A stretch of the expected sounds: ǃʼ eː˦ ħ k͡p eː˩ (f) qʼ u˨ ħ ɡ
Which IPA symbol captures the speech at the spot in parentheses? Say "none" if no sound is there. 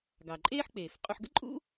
f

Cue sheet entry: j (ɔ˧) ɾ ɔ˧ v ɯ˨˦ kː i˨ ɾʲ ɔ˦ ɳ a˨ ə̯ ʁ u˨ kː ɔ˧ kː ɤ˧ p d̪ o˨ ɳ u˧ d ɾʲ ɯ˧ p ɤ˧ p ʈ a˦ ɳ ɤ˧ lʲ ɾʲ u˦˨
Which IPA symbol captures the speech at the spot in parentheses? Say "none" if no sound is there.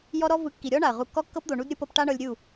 ɔ˧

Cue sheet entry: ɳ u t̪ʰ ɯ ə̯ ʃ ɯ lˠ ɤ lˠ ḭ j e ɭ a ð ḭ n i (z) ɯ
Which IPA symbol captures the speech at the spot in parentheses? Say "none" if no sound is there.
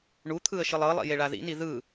ð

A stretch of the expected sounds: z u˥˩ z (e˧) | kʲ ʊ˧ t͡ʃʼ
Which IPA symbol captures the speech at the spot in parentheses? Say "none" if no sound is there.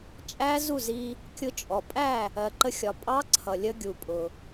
i˧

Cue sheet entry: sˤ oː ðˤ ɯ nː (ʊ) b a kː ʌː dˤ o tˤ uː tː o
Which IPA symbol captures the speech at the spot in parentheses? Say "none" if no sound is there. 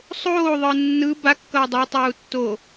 ɯ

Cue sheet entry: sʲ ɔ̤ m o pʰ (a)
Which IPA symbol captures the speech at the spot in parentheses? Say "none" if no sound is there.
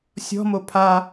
a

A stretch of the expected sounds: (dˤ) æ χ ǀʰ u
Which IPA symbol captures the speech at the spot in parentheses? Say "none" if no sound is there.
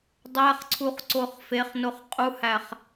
dˤ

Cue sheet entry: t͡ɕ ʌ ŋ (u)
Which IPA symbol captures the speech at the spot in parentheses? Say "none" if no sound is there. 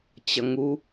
u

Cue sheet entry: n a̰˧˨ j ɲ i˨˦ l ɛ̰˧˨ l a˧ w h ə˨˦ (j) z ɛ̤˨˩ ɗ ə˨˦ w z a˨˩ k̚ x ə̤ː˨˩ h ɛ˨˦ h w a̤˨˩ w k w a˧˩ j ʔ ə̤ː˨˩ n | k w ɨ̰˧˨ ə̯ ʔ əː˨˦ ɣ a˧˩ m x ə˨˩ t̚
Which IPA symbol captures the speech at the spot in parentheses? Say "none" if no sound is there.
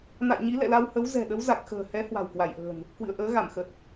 w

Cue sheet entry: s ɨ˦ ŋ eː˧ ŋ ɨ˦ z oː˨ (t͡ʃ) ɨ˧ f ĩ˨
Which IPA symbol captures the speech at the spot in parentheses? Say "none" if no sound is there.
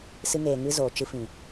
t͡ʃ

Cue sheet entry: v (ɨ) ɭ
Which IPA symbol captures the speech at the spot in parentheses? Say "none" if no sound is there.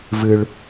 ɨ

